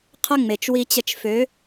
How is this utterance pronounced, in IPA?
qʰə˦ ŋ͡me˨t͡ʃ wi˧t͡ɕə˧t͡ʃfø˨˦

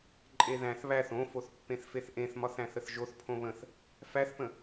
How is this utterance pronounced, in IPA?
ǃʼeðæ̃θ βæθ õfoθ pːẽθfeθʔẽθmɒθ æ̃θəθʒoθ pʰõβə̃θ | fæθpə̃

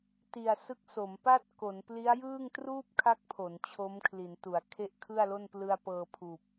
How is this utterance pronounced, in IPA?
ti˨˩a̯sɯ˦˥k̚so˩˦m pa˥˩t̚ko˩˦npli˦˥a̯jɯː˥˩ŋ truː˥˩p̚kʰa˦˥k̚ pʰo˩˦nt͡ɕʰo˦˥mkʰli˩˦ntu˩˦a̯ kʰe˥˩ʔ kʰɯ˥˩a̯lo˥˩n plɯ˧a̯ pɤː˧pʰuː˨˩p̚

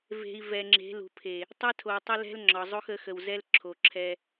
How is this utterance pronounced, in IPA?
ve̤˨i̯ vɛ˨ŋ͡ǁe̤˨˦ lṳ˨pʰe˨ | tˤɛ˦tʰo˨tˤə˦ lɛ̤˦lŋ͡ǁɒ˨zˤo˦x ə˨˦xə˨wzɛ˦l ǁʰo˨ǁʰɛ˦

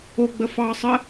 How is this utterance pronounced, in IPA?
oɡ͡bə fɑsˤə

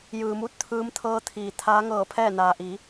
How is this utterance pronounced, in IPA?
jɯː˩mu˧t̚ t̪ʰɯː˧mt̪ʰɤː˧t̪ʰiː˩ t̪ʰaː˧˥ŋɤː˧˩pʰɛː˥˨ naː˩ʔiː˩˧

